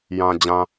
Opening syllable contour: low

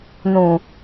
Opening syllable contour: low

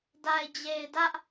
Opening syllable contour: low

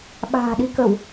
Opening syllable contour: low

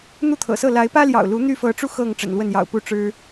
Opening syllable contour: falling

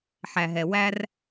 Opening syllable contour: low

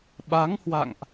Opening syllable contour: rising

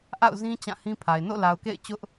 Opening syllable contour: falling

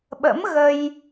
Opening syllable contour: rising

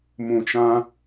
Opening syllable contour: low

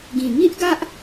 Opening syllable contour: low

